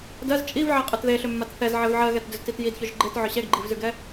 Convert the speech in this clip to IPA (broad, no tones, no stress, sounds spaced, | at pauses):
d ɜ z t͡ʃʼ i v ʕ ɛ qʼ ʏ t ð e ɬ ʏ mː a t θ ɛ z ʕ ɛ v ʕ ɜ ɣ ɛ t d ʏ z t i t j i d ç ɵ ʒ ɡ͡ǃ e t ʕ ʏ ɕ ɛ ɡ ɡ͡ǃ i v z ʉ ɡ ɛ